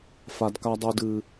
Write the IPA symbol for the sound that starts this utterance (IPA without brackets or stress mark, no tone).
f